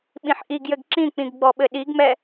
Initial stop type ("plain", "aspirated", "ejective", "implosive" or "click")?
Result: implosive